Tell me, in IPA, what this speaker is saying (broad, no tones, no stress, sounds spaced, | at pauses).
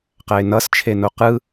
q æ ɪ̯ n ʌ s t͡ʃʰ e n o q ɯ